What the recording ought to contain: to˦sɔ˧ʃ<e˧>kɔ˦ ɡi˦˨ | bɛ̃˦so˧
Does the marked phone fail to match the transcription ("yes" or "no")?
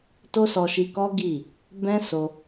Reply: yes